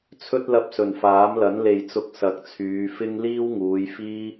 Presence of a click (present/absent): absent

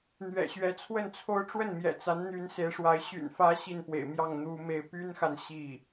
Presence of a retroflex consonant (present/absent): present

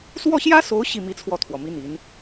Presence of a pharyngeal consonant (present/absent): absent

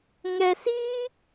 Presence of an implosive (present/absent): absent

